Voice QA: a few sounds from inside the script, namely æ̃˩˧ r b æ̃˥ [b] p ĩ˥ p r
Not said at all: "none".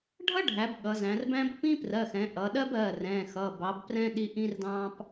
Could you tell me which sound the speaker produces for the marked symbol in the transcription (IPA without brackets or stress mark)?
b